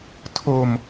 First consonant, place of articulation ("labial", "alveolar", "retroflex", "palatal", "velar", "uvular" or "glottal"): alveolar